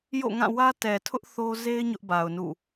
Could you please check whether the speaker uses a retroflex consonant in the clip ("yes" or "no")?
no